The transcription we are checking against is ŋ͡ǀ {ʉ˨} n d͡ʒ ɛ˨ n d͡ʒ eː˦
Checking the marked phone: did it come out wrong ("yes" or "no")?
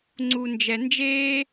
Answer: yes